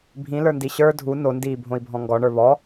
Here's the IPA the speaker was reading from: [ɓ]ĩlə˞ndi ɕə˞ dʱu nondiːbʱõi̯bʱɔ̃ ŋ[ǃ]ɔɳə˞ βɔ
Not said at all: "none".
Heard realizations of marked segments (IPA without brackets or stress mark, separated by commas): bʱ, ɡ